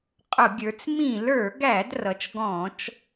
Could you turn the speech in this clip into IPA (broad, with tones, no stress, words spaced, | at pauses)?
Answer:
qʼʊ˧˩˧ɡʲə˞˩˧t͡s mĩ˧˩˧lə˞˧˩˧ɡæ˧˩˧d rʌ˩˧t͡ʃɡɔ̃˧˩˧t͡ʃ